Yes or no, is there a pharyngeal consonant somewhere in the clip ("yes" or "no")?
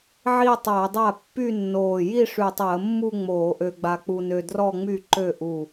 yes